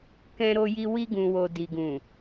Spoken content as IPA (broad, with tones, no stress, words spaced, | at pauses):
kɛ̃˧ ɾo˧ji˧ wi˧ɡũ˨wo˨ di˨ɡũ˨